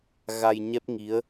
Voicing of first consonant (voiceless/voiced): voiced